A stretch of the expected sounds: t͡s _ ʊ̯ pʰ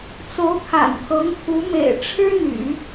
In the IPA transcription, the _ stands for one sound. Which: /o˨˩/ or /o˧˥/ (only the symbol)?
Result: o˧˥